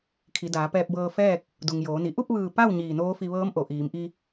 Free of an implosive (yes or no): yes